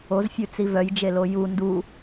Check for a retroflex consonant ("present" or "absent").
absent